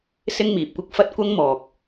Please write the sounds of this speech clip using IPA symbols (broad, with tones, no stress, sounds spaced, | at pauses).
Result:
s ɪ˥ ŋ m iː˨ p̚ kʷ ɪ˥ k̚ f ɐ˥ t̚ kʷ ɐ˥ ŋ m ɔː˨ k̚